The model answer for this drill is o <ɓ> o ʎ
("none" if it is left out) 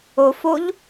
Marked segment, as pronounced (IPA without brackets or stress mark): f